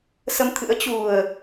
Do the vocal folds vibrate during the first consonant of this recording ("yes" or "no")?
no